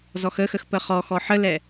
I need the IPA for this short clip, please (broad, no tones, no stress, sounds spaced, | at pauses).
z ɔ x ə x ə x p ə χ ɔ x ɔ ħ ə l ɛ